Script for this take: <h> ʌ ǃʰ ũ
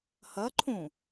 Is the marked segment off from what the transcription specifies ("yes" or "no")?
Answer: no